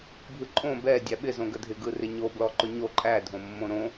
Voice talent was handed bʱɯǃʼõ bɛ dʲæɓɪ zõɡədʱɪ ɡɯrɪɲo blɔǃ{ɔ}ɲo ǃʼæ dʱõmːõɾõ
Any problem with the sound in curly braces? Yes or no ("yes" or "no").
yes